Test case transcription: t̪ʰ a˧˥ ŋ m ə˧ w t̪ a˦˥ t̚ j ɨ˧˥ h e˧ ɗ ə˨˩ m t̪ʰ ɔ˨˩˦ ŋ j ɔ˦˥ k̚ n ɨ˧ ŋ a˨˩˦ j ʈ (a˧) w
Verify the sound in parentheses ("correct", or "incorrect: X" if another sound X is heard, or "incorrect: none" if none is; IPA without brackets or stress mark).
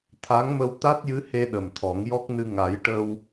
incorrect: ə˧